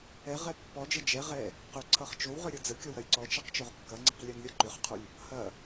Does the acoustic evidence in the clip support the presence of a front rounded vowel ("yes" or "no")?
yes